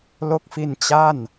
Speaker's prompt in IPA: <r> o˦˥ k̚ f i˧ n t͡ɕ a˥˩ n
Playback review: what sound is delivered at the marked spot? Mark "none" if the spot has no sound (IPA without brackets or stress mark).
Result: l